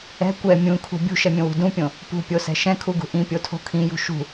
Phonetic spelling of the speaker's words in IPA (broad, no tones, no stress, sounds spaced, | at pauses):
ɛ̤ kʷ ɛ mʲ ũ kʰ ṳ bʲ ṳ ʃ ɛ mʲ õ w ṳ d ũ pʲ õ | p ṳ pʲ o s ɛ̤ ʃ ɛ̃ kʰ u ɡ ṳ ʔ ĩ pʲ o tʰ o̤ kʰ ĩ j ṳ ʃ ṳ